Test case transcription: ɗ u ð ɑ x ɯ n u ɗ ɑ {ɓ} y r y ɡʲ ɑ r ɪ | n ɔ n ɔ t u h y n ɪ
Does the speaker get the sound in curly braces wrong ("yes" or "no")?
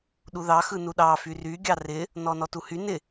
yes